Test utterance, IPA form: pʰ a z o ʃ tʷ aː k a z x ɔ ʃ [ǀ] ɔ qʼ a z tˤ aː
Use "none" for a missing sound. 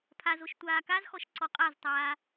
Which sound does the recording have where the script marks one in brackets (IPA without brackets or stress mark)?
ǀ